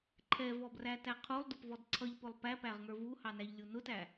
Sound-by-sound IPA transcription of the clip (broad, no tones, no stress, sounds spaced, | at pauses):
ǃʰ ɛ v ɔ b r æ t æ qʰ u lˠ d ʊ p v ɔ d ǀʰ ʌ ʎ p ʊ lˠ p æ p æ ʁ ŋ ə˞ v u h ɑ n æ ʎ lʲ u n ʊ t æ